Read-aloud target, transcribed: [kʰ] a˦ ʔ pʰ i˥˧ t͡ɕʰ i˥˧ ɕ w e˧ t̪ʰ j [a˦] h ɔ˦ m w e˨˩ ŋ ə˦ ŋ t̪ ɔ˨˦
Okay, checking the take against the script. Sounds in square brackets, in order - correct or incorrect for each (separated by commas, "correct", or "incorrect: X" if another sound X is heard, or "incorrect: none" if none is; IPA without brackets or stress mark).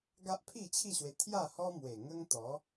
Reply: incorrect: ɡ, incorrect: a˥˧